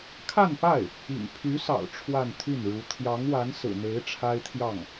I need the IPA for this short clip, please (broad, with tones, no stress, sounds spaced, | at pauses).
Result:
kʰ a˥˧ n p a˥˩ ɪ̯ | ḭ˨˩ ŋ pʰ y˧˥ s ɑ̰˨˩ ʊ̯ ʈ͡ʂʰ w a˥˧ n t̪ʰ y˥˩ n ɻ u˧˥ t̪ʰ j ɑ˧˥ ŋ w a˧˥ n s ɹ̩˨˩ n̪ e˧˥ ɪ̯ ʈ͡ʂʰ a˥ ɪ̯ t̪ʰ j ɑ˥˩ ŋ